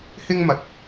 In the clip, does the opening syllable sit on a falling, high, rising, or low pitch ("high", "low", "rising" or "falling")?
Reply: high